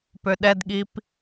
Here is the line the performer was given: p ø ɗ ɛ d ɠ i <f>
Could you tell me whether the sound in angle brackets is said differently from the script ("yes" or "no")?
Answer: yes